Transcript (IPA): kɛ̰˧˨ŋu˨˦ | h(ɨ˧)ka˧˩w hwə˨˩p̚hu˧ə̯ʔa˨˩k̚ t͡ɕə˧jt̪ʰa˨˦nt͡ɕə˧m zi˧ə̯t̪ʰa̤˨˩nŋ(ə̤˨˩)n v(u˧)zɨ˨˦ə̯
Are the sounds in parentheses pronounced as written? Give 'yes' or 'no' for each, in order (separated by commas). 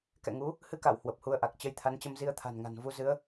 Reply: yes, no, yes